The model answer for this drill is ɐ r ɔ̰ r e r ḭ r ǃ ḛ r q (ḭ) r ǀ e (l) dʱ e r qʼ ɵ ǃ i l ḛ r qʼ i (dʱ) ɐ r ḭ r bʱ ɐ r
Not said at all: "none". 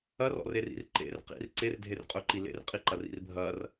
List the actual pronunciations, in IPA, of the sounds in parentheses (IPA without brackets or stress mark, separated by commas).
ḭ, r, ǃ